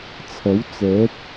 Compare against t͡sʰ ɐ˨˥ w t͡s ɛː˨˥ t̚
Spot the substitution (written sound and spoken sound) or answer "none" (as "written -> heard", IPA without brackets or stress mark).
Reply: none